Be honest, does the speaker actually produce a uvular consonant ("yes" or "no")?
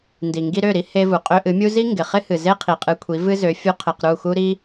yes